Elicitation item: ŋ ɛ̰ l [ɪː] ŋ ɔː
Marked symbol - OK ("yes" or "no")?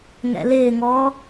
yes